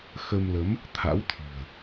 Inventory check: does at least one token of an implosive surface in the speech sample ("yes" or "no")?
no